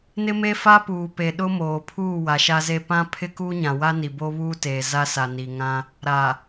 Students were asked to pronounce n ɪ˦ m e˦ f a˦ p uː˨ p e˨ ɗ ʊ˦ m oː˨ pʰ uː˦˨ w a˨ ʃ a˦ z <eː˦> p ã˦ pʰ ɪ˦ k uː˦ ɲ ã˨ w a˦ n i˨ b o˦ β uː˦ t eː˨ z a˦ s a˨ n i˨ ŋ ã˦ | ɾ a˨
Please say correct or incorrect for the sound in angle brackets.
incorrect